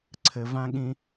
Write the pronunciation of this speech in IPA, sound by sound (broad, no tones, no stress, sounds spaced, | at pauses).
ǀʰ ɘ v ã ɠ ĩ